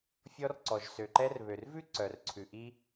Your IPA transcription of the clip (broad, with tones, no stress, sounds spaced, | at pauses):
fʲ ɔ˧ r ǀ ɔ˩ ʒ s ø˩ ǃ ɛ˧ r β ø˩ r v ʉ˥ ǀ œ˩ r ǀʰ ʉ˩ ʔ i˧